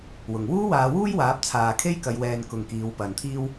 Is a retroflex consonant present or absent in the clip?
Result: absent